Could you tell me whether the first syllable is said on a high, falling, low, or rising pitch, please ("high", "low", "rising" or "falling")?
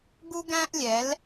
high